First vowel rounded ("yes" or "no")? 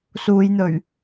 yes